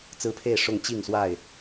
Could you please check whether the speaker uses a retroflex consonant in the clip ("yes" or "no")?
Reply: yes